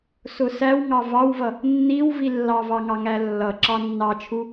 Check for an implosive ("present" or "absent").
absent